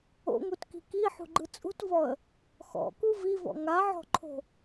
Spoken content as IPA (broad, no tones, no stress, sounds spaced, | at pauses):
o̰ ŋ u t k i̤ k i ħ ṳ ɡ͡ǃ ɯ t͡sʼ ṳ t v ɔ ə̯ | x ɔ̰ k u v i v ɔ̰ ŋ a ʕ ɔ̤ ǃʰ o̤